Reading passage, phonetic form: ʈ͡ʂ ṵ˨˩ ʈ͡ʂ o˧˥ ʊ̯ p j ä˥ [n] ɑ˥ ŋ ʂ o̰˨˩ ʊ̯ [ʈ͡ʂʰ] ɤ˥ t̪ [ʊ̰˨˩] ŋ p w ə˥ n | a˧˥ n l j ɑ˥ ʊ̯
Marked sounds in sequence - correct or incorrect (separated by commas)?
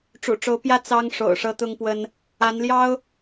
incorrect, incorrect, incorrect